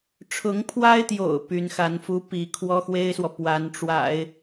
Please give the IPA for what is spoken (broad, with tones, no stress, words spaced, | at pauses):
ʈ͡ʂʰʊ˧˥ŋpʰwa˥ɪ̯t̪jo̰˨˩ʊ̯ py˧˥nxa˧˥nfu˥pi˧˥ kʰwɔ˥xwe˥ɪ̯swɔ˨ pwa˧˥nʈ͡ʂwa̰˨˩˦ɪ̯